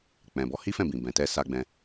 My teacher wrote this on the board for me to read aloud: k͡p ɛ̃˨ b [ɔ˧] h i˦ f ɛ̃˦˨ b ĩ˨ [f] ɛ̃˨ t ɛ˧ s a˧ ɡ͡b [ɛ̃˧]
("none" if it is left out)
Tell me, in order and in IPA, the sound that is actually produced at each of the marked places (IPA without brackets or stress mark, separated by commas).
ɔ˧, b, ɛ̃˧